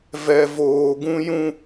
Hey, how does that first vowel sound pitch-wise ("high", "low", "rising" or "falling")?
low